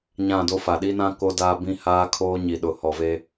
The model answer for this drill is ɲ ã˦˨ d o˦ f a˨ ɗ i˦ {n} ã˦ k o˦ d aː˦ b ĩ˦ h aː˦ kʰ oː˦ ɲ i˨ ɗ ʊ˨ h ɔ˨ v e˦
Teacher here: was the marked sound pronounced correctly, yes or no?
yes